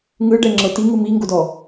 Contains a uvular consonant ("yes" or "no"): no